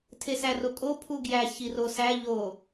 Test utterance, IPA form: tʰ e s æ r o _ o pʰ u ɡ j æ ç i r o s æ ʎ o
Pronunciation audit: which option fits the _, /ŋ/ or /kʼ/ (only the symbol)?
kʼ